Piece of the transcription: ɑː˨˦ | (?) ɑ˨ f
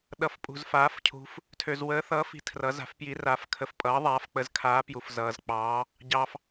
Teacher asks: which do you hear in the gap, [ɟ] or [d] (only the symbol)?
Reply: ɟ